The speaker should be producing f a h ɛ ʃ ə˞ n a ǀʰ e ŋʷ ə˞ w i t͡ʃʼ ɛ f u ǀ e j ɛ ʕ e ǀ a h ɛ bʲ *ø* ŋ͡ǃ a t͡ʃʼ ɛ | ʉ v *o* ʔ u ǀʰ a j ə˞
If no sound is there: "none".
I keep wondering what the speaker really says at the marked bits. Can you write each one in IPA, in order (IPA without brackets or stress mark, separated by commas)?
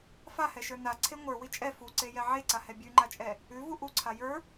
ʉ, u